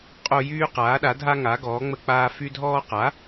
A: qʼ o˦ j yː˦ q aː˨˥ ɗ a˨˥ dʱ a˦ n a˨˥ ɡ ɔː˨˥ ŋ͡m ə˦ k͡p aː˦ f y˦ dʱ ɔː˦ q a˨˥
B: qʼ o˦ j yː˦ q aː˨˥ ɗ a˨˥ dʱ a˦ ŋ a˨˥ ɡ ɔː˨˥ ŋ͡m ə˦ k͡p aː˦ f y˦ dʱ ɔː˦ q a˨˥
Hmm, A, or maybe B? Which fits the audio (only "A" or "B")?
B